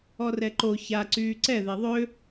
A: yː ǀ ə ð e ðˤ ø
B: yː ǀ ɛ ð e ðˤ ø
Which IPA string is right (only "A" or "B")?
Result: B